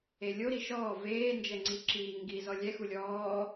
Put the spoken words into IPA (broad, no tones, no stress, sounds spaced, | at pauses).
e lʲ o ɾ i ʃ ɔː v eː n d͡ʒ ɛ ŋ͡ǀ i ǁ iː ŋ ɡ i z ɔ lʲ ɛ x u lʲ ɔː